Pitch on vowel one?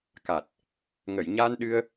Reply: low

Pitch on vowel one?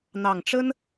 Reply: low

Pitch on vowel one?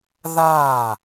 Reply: falling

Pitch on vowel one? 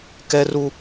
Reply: high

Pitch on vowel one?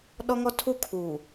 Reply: high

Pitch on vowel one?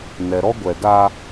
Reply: low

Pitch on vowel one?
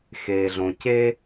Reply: low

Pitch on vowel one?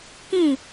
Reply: falling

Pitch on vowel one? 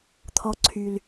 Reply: low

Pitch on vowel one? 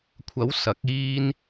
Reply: rising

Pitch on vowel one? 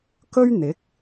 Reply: high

